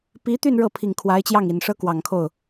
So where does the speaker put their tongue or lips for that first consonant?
lips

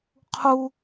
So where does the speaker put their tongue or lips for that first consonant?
uvula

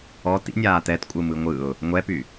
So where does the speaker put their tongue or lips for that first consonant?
tongue tip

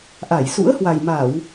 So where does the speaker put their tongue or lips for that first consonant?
throat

